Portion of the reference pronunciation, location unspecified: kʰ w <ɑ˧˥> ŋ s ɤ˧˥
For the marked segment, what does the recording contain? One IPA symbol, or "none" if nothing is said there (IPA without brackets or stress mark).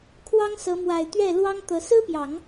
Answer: ɑ˥